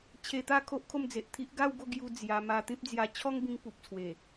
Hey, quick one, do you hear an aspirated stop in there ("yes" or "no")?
yes